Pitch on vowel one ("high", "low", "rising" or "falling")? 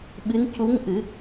rising